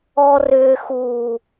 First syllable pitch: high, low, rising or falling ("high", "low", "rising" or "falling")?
low